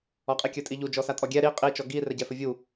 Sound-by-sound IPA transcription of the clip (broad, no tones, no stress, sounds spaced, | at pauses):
ɔ qʼ i kʲ ɵ tʼ i ʎ u d͡ʒ ɔ s a tʼ ɔ ɡʲ ɛ ɾ i qʼ i t͡ʃ ɔ ɡ i r ɛ ɟ ɛ f ɵ vʲ u